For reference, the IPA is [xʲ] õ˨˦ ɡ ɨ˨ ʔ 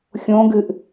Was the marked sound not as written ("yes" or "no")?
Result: no